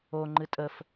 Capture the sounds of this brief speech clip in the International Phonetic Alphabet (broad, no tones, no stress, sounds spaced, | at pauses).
o ŋ͡ǃ ɨ tʼ ə f